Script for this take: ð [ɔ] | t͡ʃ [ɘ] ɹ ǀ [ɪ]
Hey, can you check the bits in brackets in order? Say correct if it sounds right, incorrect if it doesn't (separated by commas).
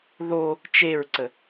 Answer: incorrect, incorrect, incorrect